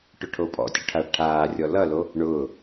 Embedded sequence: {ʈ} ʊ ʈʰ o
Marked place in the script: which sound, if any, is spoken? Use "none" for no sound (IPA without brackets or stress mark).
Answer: ʈ